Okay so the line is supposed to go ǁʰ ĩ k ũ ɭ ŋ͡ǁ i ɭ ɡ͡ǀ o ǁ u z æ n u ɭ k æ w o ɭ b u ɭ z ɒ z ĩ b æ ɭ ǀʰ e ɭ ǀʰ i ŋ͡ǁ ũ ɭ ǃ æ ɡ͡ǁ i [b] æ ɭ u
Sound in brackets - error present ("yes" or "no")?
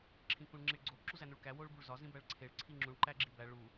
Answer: no